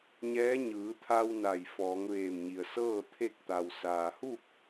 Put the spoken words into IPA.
ɲ ɛː˧˥ ɲ ɯː˩˧ t̪ʰ a˧ w n a˧˩ j f ɔː˩˧ ŋ ʋ eː˧˩ m ɲ i˩ ə̯ s ɤː˥˨ t̪ʰ e˥˨ k̚ t̪ a˩ w s aː˩ h u˥˨ k̚

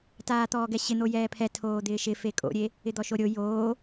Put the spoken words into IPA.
t aː t̪ ɔː ɡ ɛ ɕ ɪ n̪ o j ɛː pʰ ɛ tʰ oː d̪ ɪː ʃ ɪ f e kʼ o̰ ɾʲ e | ɪ d̪ ɔ ʃ o ɾʲ o j oː

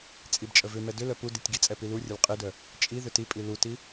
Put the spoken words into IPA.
t͡sʼ i b t͡ʃʼ ə v ʏ m ɛ d ʏ l œ p u d i tʲ ɡ i t͡sʼ ɛ p i l u rʲ ə l qʼ i d œ | t͡ʃʼ i ð ʏ t i pʼ i l u t i

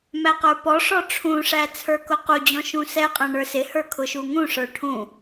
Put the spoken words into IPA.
m æ q ə˞ p ɔ ʂ ɔ ʈ͡ʂʰ ũ ʂ æ t͡sʰ ə˞ k ʊ q u d͡ʑ ɔ̃ ʃ ũ s ɛ qʼ æ̃ ɳ ə˞ s ɪ h ə˞ kʰ ʊ ʃ u ŋ ũ ʂ ə˞ ʈʰ ũ

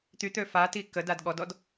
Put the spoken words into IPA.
t̪ y t̪ ø f a t i k ə d a d ɠ ɔ d ɔ d

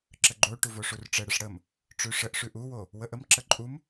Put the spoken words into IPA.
ǁ ə ɡ͡ǃ o ʈ u v o ʂ u r ʈ͡ʂ ə ɽ ə ʂ ɽ ə m | ʈ͡ʂ ʉ ʂ ə ʔ ʂ ʉ ʔ u w o | w ə ʔ ə m ǁ ə ǃʼ u m

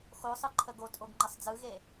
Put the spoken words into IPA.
x o sˤ ɯ ǃʰ ə ɡ o tʼ o ɡ ŋ͡ǃ ə sˤ d͡z ɯ ɣ e

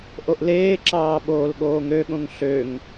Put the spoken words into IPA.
ʔ o ʔ l eː ǁ ɑː ɓ oː l ɠ oː ŋ ø ɠ õ ŋ ɬ ø ŋ

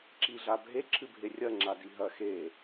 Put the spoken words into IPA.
ǁ i ɮ a bʱ e ǁʰ ɨ bʱ e rʲ ɐ ŋ͡ǁ a d i ɦ ɐ x e

